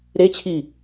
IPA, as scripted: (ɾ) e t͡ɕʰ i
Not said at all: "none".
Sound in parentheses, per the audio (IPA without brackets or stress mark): ɾ